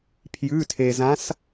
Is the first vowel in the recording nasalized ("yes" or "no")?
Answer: no